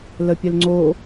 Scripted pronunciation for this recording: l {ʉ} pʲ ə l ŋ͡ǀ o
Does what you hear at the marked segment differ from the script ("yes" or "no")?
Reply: yes